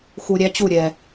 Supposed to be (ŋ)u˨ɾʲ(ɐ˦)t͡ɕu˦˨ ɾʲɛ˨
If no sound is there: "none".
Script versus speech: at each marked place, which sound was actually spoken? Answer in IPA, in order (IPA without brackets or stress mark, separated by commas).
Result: x, æ˦